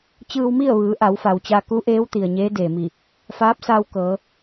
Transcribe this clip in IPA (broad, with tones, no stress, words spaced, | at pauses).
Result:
t͡ɕɯː˧wmi˥˨ə̯ʋɯː˩˧ ʔa˩˧wfa˩wt͡ɕa˧ ku˧˥ʔeː˧˥w t̪i˩ə̯ ɲeː˧˥deː˩mi˧˩ | faː˧˥p̚saː˧w kɤː˩˧